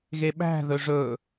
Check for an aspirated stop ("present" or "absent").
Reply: absent